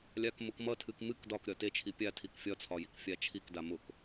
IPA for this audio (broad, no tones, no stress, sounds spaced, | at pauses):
lʲ a k m ʊ k m ʌ tʰ ɨ k m ɨ k d ɒ k ɾʲ ɒ t e t͡ʃʰ i pʲ a tʰ i k fʲ ɒ t͡sʰ ɒ j i k fʲ a t͡ʃʰ i k d a m ʊ k